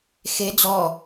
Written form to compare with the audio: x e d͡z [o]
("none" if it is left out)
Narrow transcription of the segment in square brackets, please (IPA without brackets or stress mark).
ɔ